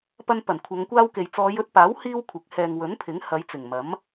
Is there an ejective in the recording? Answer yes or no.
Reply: no